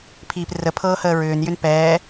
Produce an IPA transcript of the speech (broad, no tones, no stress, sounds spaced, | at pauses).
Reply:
pʰ iː p r ə pʰ ɤː h əː ɹ ʏː n j ʏ n p ɛː